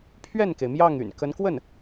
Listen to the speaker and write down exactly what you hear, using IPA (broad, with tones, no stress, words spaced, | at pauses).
pʰɥɛ˥˩nke˩ɪ̯ mjɑ˥˩ŋy̰˨˩n kə˧˥nkwə˥˩n